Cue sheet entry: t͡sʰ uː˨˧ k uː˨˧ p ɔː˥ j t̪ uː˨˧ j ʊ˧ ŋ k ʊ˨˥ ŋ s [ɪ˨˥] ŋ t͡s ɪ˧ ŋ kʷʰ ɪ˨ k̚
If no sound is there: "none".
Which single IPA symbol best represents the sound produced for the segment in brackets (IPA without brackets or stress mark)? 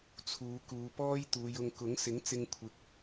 ɪ˨˥